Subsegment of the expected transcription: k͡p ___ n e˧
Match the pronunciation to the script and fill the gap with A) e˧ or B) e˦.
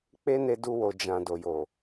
B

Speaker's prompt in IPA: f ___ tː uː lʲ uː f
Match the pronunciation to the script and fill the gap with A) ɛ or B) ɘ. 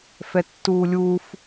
A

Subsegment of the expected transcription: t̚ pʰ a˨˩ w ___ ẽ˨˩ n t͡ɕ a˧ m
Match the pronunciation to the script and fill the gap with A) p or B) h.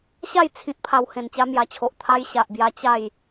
B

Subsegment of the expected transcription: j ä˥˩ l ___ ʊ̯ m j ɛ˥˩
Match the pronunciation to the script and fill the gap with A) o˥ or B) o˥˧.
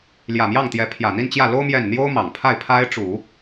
A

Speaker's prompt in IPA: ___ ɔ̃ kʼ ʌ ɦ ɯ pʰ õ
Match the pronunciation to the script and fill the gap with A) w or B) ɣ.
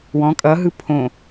A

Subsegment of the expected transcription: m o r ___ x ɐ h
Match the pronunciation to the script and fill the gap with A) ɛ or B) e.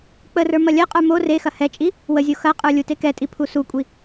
B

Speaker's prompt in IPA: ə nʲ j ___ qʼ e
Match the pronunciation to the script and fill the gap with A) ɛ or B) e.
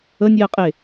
A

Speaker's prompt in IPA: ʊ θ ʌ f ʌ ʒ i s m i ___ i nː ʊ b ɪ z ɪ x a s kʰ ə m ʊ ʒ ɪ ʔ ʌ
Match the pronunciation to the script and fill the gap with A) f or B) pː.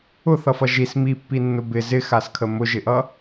B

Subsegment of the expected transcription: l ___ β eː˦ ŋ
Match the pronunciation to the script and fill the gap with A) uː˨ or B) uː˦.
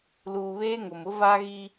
A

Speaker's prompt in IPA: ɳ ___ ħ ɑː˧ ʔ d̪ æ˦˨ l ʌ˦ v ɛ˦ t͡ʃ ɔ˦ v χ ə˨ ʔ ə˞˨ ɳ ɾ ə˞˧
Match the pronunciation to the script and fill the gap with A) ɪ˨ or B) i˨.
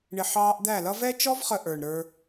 A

